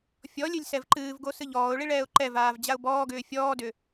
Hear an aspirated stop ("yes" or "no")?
no